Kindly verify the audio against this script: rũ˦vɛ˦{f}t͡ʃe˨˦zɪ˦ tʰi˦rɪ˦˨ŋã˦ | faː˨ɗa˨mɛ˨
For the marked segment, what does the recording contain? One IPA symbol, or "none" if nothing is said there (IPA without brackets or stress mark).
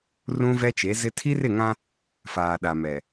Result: none